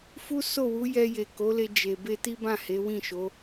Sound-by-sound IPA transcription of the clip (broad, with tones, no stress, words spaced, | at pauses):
fu˦ so˦˨wu˨˦ jɛ˧je˨ ko˨˦le˧ d͡ʒe˨ be˧ti˦bã˦˨ he˨˦wĩ˦˨ʃo˨˦